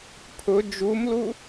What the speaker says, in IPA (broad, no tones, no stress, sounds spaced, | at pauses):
pʰ ʊ d͡ʒ u m l u